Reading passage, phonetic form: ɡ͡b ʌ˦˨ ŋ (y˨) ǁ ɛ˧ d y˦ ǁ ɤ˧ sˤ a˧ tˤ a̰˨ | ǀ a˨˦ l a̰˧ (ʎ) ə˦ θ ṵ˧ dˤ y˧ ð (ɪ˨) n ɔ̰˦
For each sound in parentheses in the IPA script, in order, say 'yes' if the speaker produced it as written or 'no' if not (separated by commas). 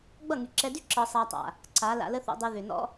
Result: yes, no, no